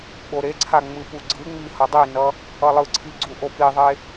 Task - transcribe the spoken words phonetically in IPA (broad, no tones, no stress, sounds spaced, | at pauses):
ɓ o ɾ e ǀʰ a ŋ͡m ɯ p u ɡ͡ǀ ɯ ŋ͡m i h ʌ dˤ i n ʌ | ʌ lˠ ɯ ǀʰ i ɡ͡ǀ u ʔ o p i ðˤ e